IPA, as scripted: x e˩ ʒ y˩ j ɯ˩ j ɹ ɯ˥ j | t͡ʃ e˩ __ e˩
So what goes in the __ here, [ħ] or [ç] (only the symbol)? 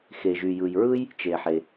ħ